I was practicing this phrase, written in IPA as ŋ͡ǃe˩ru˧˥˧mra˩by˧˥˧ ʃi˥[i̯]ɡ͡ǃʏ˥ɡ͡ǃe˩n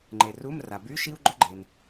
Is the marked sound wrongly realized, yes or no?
yes